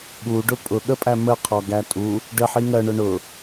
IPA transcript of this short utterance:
ɠ u ɖ ʊ pʼ ʊ ɠ ə pʼ æ m ə qʰ ɔ ɡ æ tʼ u | ɖ ə ħ i ŋ ɜ ɳ ʊ ɳ ʊ

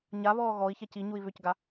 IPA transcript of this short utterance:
ɲ a β ɔː ɣ ɔ i̯ ç ɛ c i ɲ u i̯ β ʏ c ɡ a

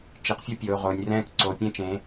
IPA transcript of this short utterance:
t͡ʃ i˩˧ q fʲ ʌ˦ pʲ oː˩˧ ʁ oː˩˧ nʲ r ɛ̃ː˦ k ǀ o˩˧ pʲ ẽ˦ t͡ʃ ẽ˩˧

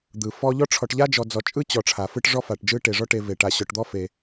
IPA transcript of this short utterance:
d̪ ɯ˩ f ɔ˦ ʎ ɔ˥ ʈ͡ʂʰ ɔ˨ ʈ ʎ a˥ d͡ʒ ɔ˨ d͡z ɔ˨ t͡ʃʼ ɯ˥ t͡ɕ ɔ˩ ʈ͡ʂʰ a˩ f ɯ˦ ʈ ʐ ɔ˦ f a˩ ʈ d͡ʒ ɯ˦ ʈ e˩ ʐ ɔ˦ ʈ e˨ v e˩ ʈ a˨ ɕ ɔ˨ ʈ d̪ ɔ˥ f e˩

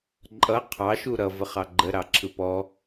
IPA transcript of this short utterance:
ǃʼ ʌ qʰ ɑ ʃ u ɾ ʌ v ə χ ɑ ɡ͡ǃ ə ɾ ɑ ǁʰ ɯ p ɔ

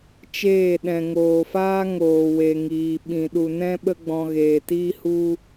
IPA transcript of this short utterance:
t͡ʃ eː˦˨ ɗ ɛ̃˨ ŋ oː˨ f aː˦ ŋ oː˨ w e˨ ŋ iː˨ ɓ ĩ˨ ɗ u˨ n ɛ̃˦ ɓ ə˦ ɡ͡b ɔ̃˧ ɣ eː˨ t iː˦ h u˦

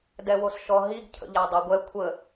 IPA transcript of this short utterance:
d ɛ w o s ʃ ɔ ɦ i ɡ cʰ ə̰ ʎ æ dˤ a ɡʷ ɛ kʷʰ ə

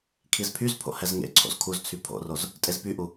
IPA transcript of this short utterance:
kʰ i z pʰ y z pʰ o̰ h ɛ z ŋ ḛ ǀʰ o̰ z kʰ u z t͡sʰ y pʰ o̰ r o z | tʼ e z p y ʔ u

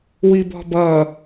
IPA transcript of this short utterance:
w i b ɔ̤ b ʌ

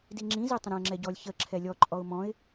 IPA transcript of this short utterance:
d i ŋ͡ǁ ĩ z i tˤ ə̃ ɾ ã ə̯ ŋ͡ǁ ɛ ɟ ɔ lʲ ç ə ǁʰ ɛ lʲ ɔ ǃʼ ɔ ʊ̯ m ɔ̃ ɪ̯

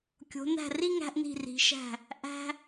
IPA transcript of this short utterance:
kʲ o̤˩˧ n æ̤˧˩ r i˥˧ ŋ æ̤˧ ʔ n i̤˧˩ r i̤˩˧ ʃ æ̤˧˩ | ʔ æ̤˧

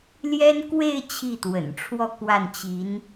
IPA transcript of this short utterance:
l j ɛ˥ n k w e˥˧ ɪ̯ t͡ɕʰ i˥˩ t̪ w ə̰˨˩ n ʈ͡ʂʰ w ɔ˥˧ k w a˥˩ n t͡ɕ i˧˥ n

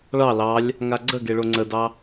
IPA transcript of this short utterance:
ɭ ɑ l ɑ lʲ | ŋ a ɡ͡ǀ ə ɡ e ɭ o ŋ͡ǀ ə d ɑ

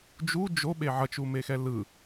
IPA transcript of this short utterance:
d͡ʒ u d͡ʒ o ɓ e ʕ ʌ t͡ʃ u m e x ɛ l ɯ

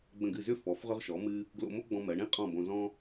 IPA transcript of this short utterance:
ɡ͡b ə̃˧˩ ɡ ɨ˧˩ z ʏ˥ f ɔ˩˧ f ʁ ʏ˧ ʁ ʃ ɔ˩˧ m ɨ˧ | ɡ l o̰˧ m o˥ ɡ͡b ɔ̃˧ m ɜ˩˧ ɳ ĩ˥˧ qʼ ɔ̃˧˩ b õ˧ z ɔ̃˥

